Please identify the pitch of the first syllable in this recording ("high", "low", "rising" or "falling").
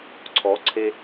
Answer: rising